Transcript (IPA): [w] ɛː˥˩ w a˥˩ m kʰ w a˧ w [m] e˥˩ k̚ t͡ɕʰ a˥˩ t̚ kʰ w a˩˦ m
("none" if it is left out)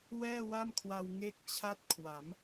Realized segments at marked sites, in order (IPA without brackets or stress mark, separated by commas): w, ŋ